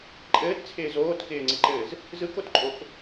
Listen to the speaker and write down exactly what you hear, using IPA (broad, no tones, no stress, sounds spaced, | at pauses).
ǃʼ ɘː t t͡sʰ ɪː z oː t k ɪː ŋ͡ǀ ɪ ǃ ɘː z | z ɯ k o t ǃʼ o k